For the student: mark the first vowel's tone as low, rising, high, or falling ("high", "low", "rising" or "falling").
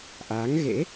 rising